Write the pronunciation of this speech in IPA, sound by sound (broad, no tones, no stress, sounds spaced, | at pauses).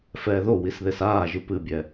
f ɛː ð o w i s ð e s aː ʒ ɨ p ɨ bʲ ɛ